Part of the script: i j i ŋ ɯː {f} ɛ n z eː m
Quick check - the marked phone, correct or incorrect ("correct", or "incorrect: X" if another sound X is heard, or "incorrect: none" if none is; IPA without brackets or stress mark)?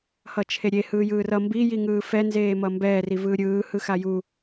correct